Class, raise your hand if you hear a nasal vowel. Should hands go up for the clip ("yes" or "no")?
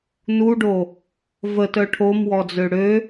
no